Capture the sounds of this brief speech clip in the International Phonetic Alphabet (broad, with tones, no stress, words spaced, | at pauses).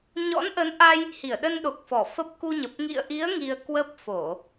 ɲɔ̰˧˥nʔə˨˦nʔa˧j | hi˧˩ə̯ɗə˧nɗo˨˩k̚fɔ˧˩ fə˦˥p̚ ku˧ɲə˨˩p̚ ŋḭ˧˨ə̯ʔi˨˦ə̯ ŋi˧ə̯kwə˦˥p̚ fo˧˩˨